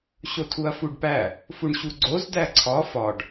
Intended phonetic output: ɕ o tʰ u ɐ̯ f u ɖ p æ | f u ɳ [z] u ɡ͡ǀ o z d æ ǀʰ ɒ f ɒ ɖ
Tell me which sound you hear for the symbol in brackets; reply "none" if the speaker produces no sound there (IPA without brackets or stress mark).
ɕ